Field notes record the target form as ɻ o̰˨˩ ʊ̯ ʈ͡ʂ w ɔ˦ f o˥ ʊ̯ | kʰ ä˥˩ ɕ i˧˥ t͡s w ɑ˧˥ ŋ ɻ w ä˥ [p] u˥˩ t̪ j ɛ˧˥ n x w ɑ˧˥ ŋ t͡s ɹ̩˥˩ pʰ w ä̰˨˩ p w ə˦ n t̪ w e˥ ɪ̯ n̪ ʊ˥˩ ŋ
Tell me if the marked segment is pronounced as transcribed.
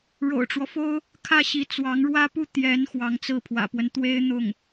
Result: yes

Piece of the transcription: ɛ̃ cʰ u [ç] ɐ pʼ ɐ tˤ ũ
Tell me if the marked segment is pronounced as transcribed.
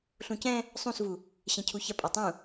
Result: yes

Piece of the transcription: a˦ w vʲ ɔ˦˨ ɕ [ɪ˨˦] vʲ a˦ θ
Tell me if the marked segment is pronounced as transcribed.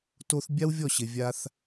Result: no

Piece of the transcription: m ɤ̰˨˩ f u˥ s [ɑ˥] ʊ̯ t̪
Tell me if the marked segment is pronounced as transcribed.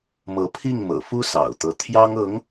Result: no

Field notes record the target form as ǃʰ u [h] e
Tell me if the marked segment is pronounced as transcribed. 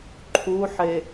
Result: no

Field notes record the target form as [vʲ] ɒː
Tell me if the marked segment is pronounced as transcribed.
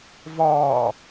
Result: no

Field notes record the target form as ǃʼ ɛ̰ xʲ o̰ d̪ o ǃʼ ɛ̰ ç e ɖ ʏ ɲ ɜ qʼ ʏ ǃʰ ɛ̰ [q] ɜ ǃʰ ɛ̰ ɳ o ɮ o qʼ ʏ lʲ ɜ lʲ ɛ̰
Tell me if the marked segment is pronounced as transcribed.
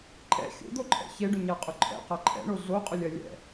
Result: yes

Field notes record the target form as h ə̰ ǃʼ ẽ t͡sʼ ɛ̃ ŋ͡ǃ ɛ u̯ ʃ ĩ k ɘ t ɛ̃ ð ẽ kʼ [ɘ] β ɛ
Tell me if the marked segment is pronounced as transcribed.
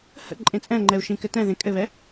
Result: yes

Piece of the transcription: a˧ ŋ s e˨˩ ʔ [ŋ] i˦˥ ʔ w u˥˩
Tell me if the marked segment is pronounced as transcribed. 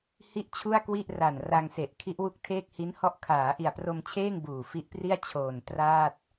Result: no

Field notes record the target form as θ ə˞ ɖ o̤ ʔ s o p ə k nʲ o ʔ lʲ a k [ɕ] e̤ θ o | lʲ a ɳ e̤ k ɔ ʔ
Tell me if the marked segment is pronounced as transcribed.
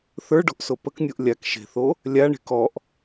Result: no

